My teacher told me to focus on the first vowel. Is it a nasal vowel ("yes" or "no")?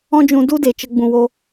yes